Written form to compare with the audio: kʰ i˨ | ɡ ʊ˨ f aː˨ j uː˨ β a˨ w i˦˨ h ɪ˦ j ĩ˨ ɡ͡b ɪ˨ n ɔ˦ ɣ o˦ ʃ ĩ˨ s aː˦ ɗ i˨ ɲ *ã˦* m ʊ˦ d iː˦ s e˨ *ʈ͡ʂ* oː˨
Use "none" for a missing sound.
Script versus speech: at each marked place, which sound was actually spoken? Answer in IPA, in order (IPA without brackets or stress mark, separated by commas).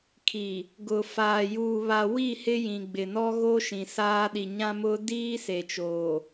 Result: ã˦, t͡ʃ